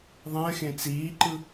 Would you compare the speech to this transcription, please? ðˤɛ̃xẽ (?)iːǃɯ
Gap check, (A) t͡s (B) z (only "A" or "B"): A